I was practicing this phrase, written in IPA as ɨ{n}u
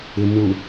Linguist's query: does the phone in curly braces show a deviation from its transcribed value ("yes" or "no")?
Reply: no